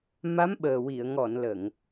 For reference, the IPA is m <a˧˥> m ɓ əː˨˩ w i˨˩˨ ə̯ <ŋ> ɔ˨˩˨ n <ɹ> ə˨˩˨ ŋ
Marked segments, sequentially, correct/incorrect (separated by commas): correct, correct, incorrect